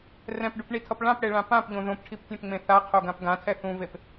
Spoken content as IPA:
rɛ̃pɖupɳitʰʌp ɭãpɽeɭã pãpʎõ ðõpʈʰiptʲẽpŋ͡mẽ θaqʰoɡãp ɡãtʰɛ θũvep

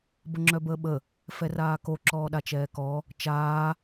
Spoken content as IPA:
bəŋ͡ǁœbəːɓə | fɛraːko ǁɔːɗat͡ʃɛːkɔ | t͡ʃaː

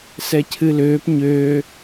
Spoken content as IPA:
sɛcʰɨløːp ɲøː

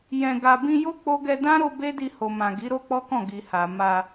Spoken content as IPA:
jɛ̃˧ɡa˧ bĩ˧jo˦ k͡po˦ ɡɛ˧dã˦ ɾo˧ be˦di˧ho˨mã˨ ɡi˨˦ɾo˦k͡pɔ˦kɔ̃˦˨ ɡi˨ha˨ ma˧

